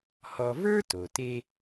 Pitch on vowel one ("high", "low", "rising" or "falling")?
low